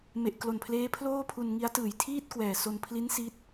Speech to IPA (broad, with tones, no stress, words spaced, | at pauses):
me˨˩ʔ klo˨˩npʰleː˦˥ pʰloː˥˩pʰu˧n ŋi˦˥a̯tɯː˨˩j tʰiː˥˩t̚kwɛː˨˩so˧n pʰli˦˥n si˦˥t̚